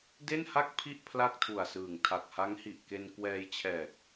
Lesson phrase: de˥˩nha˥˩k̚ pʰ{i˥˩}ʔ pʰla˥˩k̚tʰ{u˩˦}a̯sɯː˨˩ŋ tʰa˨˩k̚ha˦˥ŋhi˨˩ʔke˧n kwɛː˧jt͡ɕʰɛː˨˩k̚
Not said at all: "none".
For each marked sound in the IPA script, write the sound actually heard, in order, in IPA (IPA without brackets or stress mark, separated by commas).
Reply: i˥˩, u˨˩